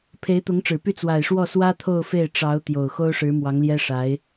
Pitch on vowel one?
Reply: rising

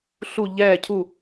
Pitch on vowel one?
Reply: falling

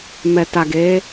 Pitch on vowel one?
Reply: low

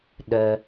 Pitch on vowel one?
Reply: low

